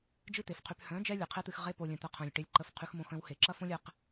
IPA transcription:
d͡ʒ ɨ˦ t̪ e˨ f qʰ y˧ p h œ̃˨˦ d͡ʒ ɛ˧ lʲ e˨ qʰ e˦ t̪ ɨ˧ x ʁ e˦ p o˧ lʲ œ̃˧ t̪ ə˦ qʰ œ̃˧ lʲ ʈ e˦ lʲ ǃ ə˦ f qʰ y˦ x m õ˦ x œ̃˦ w h e˨ ǁ ɐ˦ f õ˦ lʲ ɛ˧ q

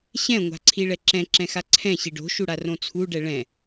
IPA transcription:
ɕ ɛ̃ ŋʷ a̤ ǀʰ i ɭ ɛ ǁ ɛ̃ ǁ ɛ̃ x a ǀʰ ɛ̃ ɕ i ɖ o̤ ʃ u ɽ a r õ t͡sʰ u ɖ ɛ ɭ ɛ̃

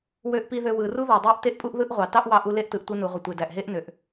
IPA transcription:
w ø˧ ʔ p i˧ ð ø˧ w ɯ˩ r u˥ ð æ˩ dˤ æ˥ ʔ t e˥ ʔ pʼ u˥ ʔ ð ɯ˥ ʔ ʁʷ ɑ˩ t ɑ˥ ʔ w ɑ˧ ʔ u˧ l e˥ ʔ t ɯ˩ ʔ tʷ ɯ˧ n u˩ ʁʷ ɯ˩ tʷ e˩ d æ˩ ʔ ɦ e˥ ʔ n ø˩ ʔ

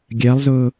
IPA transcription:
ɡʲ ɜ lˠ z ʊː

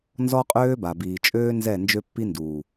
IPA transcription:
n z ɔ˦ qʼ øː˦ b a˨ b iː˨ t͡ʃʼ øː˦ n z ɛ˦˨ n d͡ʒ ø˦ pː i˦ n d uː˨

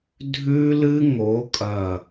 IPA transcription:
dʱ ʉ˦ l ɨ˦ ŋ o˨˦ kʼ ɐ˦˨

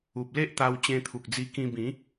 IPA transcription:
u˨ p̚ l e˦ ʔ t̪ a˧ w t͡ɕ ẽ˧ t̪ʰ u˨ k̚ d͡z i˧ k ĩ˧ b ĩ˨˦

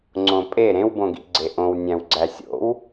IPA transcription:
ŋ͡ǀ õ pʼ e ɾ ẽ w b õ ɡ ḭ ɡ͡ǀ e ʔ õ w nʲ æ̃ w ɡ͡ǀ æ sʲ o̰ w

